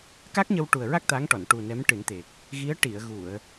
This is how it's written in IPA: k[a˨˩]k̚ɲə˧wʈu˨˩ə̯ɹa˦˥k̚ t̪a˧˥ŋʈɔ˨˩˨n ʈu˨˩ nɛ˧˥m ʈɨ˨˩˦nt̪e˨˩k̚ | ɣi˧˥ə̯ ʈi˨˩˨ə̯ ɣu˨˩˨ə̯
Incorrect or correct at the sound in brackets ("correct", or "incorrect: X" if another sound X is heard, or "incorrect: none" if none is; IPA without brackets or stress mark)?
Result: incorrect: a˦˥